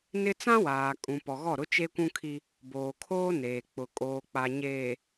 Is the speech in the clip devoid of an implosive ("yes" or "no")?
yes